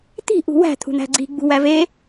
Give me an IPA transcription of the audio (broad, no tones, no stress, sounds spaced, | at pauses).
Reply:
t̪ i̤ ʔ ṳ w æ̤ t̪ʰ ṳ n̪ æ̤ ɡ͡ǀ i̤ ɡ͡b ṳ w æ v e